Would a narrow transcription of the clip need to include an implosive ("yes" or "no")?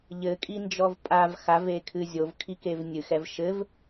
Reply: no